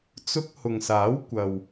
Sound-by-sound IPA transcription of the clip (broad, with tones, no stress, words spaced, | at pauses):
t͡sʊ˧k̚ hʊ˨ŋsaː˨˥wkʷɐ˨w